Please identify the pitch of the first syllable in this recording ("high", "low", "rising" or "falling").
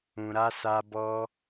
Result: low